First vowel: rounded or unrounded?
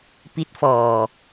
unrounded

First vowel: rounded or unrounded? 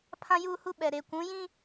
unrounded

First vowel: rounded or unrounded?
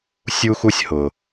rounded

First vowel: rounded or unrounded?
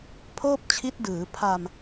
rounded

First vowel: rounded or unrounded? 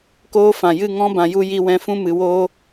rounded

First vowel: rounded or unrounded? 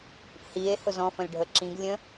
rounded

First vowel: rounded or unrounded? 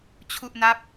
rounded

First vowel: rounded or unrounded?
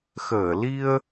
unrounded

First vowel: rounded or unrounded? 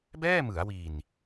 unrounded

